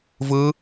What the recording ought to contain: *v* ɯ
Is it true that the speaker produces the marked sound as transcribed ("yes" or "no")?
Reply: yes